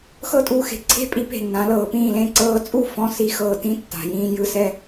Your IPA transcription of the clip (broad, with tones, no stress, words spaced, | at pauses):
xɤ˥˧tʼuː˥˧xe̤˧˩ ǀʰe̤˥˧pʼi˧pe̤˧˩ nːã˩˧lɤː˩˧pĩː˧˩lẽ˥˧ ǀɤː˧t͡sʼu˥˧fɔ̃˧˩ si˥xɤː˧ tĩ˥˧tːa̤˩˧jĩː˧ jɯ˧˩sɛ˥˧